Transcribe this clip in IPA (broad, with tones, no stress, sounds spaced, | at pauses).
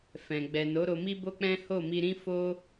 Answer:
f ɛ̃˨ ɡ͡b ɛ˨ n o˨˦ ɾ o˧ m i˦ b o˦ k͡p ɛ̃˦ h o˦˨ m i˧ ɾ ĩ˦ f o˦